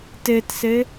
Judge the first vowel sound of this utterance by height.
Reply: mid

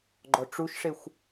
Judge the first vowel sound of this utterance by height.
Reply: mid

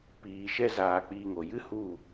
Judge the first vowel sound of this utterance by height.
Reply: high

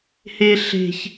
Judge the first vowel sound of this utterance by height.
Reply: mid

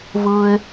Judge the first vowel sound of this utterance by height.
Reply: high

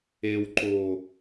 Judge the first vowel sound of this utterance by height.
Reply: mid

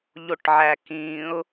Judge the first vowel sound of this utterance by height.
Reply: mid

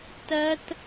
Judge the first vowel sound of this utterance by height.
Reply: low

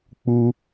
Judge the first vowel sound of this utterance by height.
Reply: high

